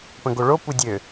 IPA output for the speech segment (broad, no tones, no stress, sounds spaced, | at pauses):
p ə̃ ɡ o ɭ o p u dʲ ø